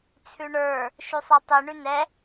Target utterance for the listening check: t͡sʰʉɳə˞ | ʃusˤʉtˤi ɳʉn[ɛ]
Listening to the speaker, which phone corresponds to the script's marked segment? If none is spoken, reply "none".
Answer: ɛ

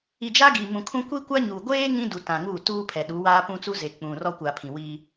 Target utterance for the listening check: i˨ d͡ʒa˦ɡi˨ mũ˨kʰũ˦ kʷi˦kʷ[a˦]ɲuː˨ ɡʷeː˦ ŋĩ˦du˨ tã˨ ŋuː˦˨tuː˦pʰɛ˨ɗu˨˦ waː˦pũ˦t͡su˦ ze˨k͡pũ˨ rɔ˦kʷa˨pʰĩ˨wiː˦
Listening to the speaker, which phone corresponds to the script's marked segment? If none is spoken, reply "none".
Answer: a˦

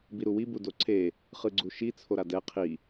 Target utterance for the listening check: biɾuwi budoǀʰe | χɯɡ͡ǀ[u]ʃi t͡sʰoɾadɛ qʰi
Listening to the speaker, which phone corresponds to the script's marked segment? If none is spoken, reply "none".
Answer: u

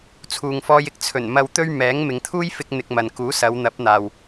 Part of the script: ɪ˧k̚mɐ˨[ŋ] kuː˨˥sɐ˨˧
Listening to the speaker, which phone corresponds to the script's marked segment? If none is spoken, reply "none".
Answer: n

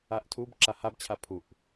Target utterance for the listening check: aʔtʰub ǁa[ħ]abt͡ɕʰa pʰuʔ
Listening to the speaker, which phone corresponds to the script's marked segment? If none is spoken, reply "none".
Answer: h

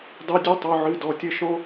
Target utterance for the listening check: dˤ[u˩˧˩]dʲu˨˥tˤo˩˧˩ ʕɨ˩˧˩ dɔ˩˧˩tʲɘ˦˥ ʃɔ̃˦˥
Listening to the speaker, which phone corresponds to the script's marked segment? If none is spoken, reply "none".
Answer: u˩˧˩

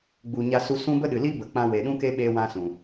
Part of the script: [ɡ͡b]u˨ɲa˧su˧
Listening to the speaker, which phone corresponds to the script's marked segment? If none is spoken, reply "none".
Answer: ɡ͡b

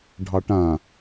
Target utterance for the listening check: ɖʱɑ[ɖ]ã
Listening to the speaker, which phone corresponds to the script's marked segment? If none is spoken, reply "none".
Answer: ʈ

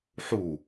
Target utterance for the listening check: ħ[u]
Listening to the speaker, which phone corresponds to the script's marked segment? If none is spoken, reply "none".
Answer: u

